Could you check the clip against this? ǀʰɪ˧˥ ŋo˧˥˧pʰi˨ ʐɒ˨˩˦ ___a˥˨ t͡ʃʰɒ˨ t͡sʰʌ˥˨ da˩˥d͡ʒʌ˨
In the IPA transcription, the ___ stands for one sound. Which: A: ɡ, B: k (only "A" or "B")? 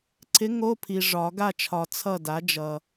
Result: A